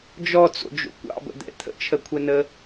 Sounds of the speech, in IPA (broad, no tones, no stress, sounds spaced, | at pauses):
d͡ʒ ɔ t͡s o̰ d͡ʒ o̰ kʷ ɑ̰ b ə̰ d̪ ɛ̰ t̪ʰ ə̰ t͡ʃʰ ə kʷʰ ɛ n ə